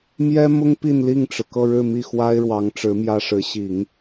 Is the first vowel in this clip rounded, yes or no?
no